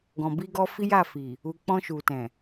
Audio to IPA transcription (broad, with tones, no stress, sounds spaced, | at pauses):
ɡ ɔ̃˨ b i˧ ɡ ɔ˧ f i˦ j a˦˨ f i˨ | u˨ k͡p ɔ̃˧ ʃ u˨ t ɛ̃˨